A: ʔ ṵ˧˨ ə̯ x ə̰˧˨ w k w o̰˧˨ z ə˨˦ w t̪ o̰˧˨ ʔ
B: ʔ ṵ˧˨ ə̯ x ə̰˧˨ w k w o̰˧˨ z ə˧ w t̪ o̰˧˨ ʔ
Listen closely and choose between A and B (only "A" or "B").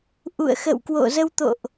B